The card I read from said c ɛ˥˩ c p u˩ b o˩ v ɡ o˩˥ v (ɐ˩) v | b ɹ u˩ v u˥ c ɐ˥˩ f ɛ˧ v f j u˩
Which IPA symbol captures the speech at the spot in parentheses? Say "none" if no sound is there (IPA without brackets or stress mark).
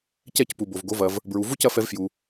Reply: ɐ˩